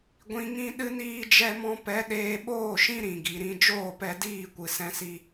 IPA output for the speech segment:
ɡʷ ĩ˨ ŋ ĩ˧ ɗ ɨ˧ n iː˧ d͡ʒ ɛ˧ m ɔ̃˧ p ɛ˨˦ ɗ eː˧ ɓ oː˦˨ ʃ ĩ˦ ɾ ĩ˨ ɡ i˨ ɾ ĩ˧ d͡ʒ oː˦˨ p ɛ˧ d iː˦˨ kʷ ɨ˨ s ɛ̃˧ s i˧

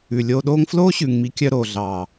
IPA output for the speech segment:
ʉ˨ lʲ oː˧ ɗ oː˦ ŋ f l oː˦ ɕ ʉ˨ ŋ m i˨˦ kʲ œ˧ ɾ oː˨ ɮ ɑ˨

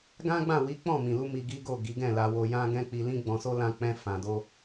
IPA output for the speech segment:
ɡ ã˦ ɡ͡b ã˦˨ w i˨˦ k͡p ɔ̃˦˨ m ĩ˨ l u˧ m i˧ ɡ i˦ ɡ o˦˨ ɡ i˨˦ ɡ ɛ̃˦˨ l a˧ w o˧ j ã˦ ɡ ɛ̃˦ k͡p i˧ l ĩ˦ ɡ͡b ɔ̃˧ s o˦ l ã˦ k͡p ɛ̃˦ f ã˧ d o˦

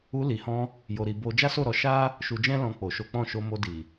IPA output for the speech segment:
u˧ l i˨ h ɔ̃˧ | j o˧ ɾ i˧ b o˧ d͡ʒ a˦ s o˦˨ ɾ ɔ˧ ʃ a˦ | ʃ u˧ d͡ʒ ɛ̃˦ l ɔ̃˧ k͡p o˨ ʃ o˨˦ k͡p ɔ̃˦˨ ʃ o˧ m o˧ d i˨

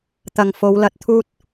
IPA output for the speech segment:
t̪ ɐ˨ ŋ f o˨˧ w l ɐ˨ t̚ t̪ʰ uː˥ t̚

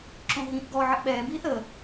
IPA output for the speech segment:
ǁ õ ɦ ĩ ʔ ɡ ɔ ʕ ə ʔ ɓ ɛː b iː θ ə

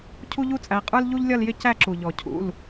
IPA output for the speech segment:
cʰ u˥ ʎ u˥ t͡sʼ æ˨˦ qʼ ə˞˥ l ʎ u˥ ʎ lʲ ʌ˥˧ l j ɪ˥˧ c æ˥˧ ǁ u˩ ʎ ɔ˩ cʰ ṵ˩˧˩ l

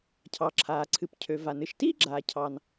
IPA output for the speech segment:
cʰ ɑ˩ ǁʰ aː˩ ǀʰ ɨ˩ p cʰ ø˩ v a˩ n ɨ˩ ʃ t iː˥ ɡ͡ǁ aː˩ cʰ ɑ˩ n

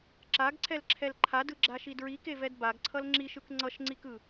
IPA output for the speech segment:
ǁ a ɡ ǀʰ ɛ l ǁʰ ɛ l ǃʰ a d ɯ ɡ͡ǁ a ʃ i d ɹ i k e v ɛ d b a ɡ ǀʰ ʌ l ŋ͡ǁ i ʃ ɯ k ŋ͡ǀ ʌ ʃ ŋ͡ǀ i k ɯ

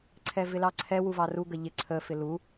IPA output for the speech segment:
ǀʰ ɛ v ɪ l ɑ ǀʰ ɛ w u v ɑ r u ɡ ə ʎ ɪ ǀʰ ə f ɪ l u

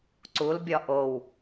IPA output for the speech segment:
ǀ u l bʲ ɒ ʔ o w

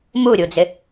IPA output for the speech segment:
m u ɾʲ u d͡z ɪ

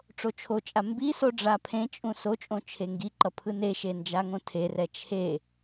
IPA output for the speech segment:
ʈ͡ʂ o t͡ʃʰ o t͡ʃʼ a m b i s o ɖ͡ʐ a pʰ ẽ t͡ʃʼ ũ s o t͡ʃʼ õ t͡ʃʰ e ŋ ɡ i ǃ ʌ pʰ ɯ n e ʃ e n d͡ʒ a ŋ õ tʰ e r ɛ t͡ʃʰ e

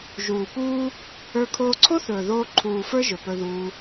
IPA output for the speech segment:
ʒ uː˨ p uː˦ | ə˞˧ kʰ oː˧ ǀʰ o˦ θ ɵː˨ ð oː˧ ǃʰ uː˨ f ə˞˦ ʒ ɵ˨ p ɵ˧ ð uː˧

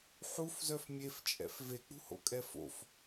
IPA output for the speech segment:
ħ u f z œ f mʲ e f t͡ʃʼ ɛ̰ f v e k͡p ṳ h o̰ kʼ ɛ f o̰ f

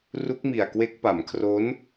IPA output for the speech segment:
r u˦˥ k̚ m i˨˩ a̯ k w e˦˥ k̚ p a˩˦ m kʰ r o˦˥ n

